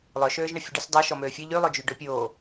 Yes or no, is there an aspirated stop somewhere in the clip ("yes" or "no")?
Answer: no